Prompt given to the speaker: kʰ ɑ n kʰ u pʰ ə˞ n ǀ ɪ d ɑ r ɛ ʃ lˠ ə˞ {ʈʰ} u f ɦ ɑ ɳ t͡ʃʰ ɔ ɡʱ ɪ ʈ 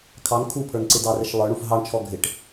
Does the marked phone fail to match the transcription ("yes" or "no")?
yes